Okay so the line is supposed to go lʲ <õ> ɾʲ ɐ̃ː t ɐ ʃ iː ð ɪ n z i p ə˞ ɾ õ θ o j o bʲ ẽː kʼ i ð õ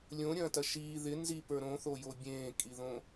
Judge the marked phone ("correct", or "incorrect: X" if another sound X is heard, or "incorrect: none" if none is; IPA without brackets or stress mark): correct